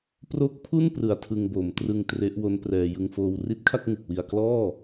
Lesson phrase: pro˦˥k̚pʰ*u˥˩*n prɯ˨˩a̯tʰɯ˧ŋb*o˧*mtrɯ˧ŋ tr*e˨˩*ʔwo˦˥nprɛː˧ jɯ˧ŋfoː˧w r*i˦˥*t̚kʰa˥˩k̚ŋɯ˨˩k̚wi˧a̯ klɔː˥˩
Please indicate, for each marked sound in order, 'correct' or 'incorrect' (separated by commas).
correct, incorrect, incorrect, correct